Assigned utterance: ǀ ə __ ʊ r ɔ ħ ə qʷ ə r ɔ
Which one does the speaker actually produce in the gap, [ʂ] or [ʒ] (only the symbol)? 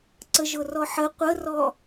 ʒ